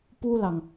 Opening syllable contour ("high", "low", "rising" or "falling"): high